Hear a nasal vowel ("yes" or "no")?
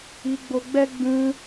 yes